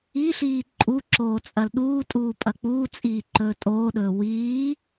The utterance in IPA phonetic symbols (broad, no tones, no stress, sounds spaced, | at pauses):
i ɬ iː ǃʼ u ǁ oː t͡sʼ ɐ l ɗ uː tʼ uː pʼ ɐ k͡p uː t͡sʼ iː ǃ ɵː tʼ oː ɗ ɵː w iː